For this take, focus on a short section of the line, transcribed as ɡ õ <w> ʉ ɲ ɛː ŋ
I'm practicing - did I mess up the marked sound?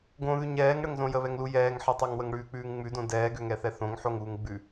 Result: yes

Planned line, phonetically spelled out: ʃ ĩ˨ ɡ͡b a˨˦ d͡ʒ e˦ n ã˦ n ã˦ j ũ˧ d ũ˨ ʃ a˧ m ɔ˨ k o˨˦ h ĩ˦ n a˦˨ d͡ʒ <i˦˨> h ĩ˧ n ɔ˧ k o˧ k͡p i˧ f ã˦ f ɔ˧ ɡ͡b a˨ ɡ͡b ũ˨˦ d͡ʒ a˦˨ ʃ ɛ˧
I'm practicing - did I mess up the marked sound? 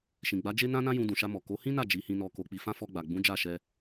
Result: yes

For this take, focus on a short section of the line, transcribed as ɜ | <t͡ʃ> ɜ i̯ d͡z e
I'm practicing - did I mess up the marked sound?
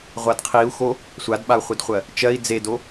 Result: no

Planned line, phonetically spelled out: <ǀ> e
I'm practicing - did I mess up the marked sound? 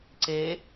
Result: no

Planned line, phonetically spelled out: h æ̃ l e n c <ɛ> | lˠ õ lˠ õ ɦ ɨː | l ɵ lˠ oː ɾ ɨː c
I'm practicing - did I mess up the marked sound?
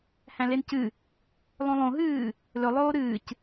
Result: yes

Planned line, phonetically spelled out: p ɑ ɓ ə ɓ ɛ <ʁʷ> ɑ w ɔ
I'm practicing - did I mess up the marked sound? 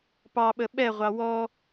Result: no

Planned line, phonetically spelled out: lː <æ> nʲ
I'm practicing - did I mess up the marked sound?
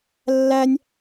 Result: no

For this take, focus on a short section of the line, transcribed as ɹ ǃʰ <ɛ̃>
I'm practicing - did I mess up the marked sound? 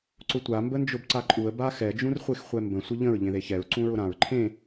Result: yes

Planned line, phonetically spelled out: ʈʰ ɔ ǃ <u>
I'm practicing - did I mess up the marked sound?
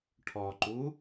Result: no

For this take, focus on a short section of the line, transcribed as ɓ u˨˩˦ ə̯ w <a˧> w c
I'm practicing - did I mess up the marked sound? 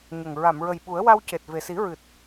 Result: no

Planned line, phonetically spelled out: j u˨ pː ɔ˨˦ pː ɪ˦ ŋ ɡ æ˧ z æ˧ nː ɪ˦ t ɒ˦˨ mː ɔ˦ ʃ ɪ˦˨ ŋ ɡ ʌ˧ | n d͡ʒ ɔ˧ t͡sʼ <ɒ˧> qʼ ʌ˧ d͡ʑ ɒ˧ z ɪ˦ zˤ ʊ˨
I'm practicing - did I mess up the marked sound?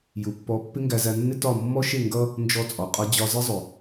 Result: yes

